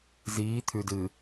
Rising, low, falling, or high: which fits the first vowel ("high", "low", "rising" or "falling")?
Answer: rising